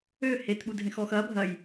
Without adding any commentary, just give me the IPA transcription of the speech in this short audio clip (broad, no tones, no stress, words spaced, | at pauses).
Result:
ø het ɓudʱẽxɔxɐ bʱɐj